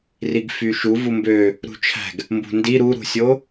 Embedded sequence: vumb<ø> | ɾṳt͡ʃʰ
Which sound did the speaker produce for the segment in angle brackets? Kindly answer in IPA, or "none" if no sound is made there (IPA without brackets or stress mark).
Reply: ø